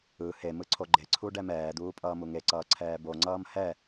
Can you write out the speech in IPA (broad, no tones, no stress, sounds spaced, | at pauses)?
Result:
ɯ h e m ɯ ǀʰ o ɡ͡ǃ e ǀʰ u ɖ ɛ m ɛː d̪ uː pʼ ʌː m u ŋ e ǀ ʌː ǀʰ ɛː b o ŋ͡ǀ ʌː m h ɛ